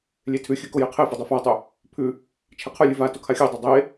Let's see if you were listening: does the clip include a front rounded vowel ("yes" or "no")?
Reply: no